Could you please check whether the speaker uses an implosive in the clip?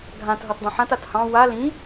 no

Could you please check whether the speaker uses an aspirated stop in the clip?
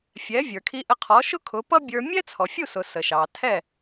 yes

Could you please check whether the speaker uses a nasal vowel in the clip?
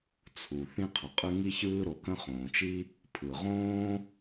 yes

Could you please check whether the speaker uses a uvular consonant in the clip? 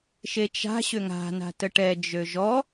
no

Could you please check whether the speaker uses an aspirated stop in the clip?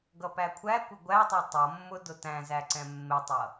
yes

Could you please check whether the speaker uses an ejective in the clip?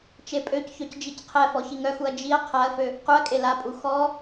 yes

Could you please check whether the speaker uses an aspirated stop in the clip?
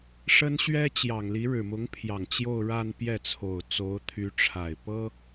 yes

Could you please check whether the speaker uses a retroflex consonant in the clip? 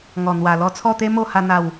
no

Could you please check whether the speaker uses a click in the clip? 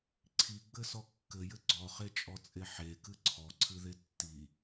yes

